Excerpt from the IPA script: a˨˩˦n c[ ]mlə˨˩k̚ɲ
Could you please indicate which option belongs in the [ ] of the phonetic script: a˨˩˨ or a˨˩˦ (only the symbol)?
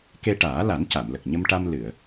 a˨˩˨